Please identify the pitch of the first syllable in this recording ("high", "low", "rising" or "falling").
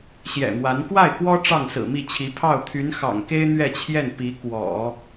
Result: low